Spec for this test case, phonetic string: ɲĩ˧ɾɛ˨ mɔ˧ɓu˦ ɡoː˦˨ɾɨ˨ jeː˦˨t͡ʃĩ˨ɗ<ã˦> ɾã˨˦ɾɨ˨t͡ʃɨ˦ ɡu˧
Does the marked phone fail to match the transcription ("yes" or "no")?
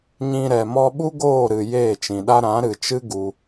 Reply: yes